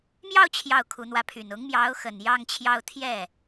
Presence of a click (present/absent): absent